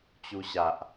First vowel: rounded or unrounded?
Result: rounded